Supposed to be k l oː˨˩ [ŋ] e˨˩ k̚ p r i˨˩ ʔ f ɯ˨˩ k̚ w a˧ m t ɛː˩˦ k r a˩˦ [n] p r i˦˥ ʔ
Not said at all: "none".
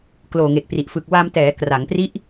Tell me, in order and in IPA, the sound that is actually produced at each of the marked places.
ŋ, ŋ

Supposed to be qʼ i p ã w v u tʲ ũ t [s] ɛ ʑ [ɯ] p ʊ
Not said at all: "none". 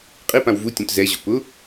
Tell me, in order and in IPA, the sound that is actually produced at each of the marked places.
z, ʊ

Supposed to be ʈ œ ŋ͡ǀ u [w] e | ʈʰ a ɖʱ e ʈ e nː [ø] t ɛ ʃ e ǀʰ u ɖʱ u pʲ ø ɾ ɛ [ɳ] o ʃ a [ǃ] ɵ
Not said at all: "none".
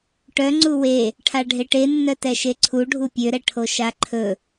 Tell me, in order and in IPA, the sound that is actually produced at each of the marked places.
w, œ, ʈʰ, ǃʰ

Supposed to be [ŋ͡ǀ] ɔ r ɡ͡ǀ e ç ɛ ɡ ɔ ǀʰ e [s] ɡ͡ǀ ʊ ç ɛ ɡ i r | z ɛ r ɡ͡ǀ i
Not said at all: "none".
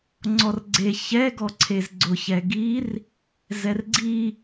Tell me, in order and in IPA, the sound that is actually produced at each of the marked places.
ŋ͡ǀ, z

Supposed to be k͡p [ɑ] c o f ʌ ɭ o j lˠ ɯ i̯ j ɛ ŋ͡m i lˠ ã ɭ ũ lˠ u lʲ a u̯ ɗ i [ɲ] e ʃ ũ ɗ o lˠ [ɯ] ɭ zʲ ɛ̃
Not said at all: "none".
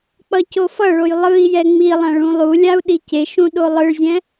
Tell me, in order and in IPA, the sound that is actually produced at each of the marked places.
ʌ, c, ɯ

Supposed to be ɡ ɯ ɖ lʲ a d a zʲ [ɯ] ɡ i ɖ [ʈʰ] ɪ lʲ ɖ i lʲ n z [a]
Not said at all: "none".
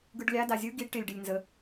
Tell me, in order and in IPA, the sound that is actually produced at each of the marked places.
ɯ, ʈ, ə

